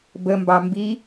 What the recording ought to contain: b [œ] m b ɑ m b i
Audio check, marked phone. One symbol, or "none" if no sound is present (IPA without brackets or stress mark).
ə